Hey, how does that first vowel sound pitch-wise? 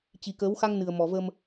low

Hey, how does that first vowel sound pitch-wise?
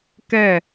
falling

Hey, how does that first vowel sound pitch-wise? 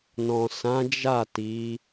low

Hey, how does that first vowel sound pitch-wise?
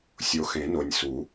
low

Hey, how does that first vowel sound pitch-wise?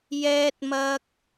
high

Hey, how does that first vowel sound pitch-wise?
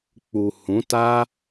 low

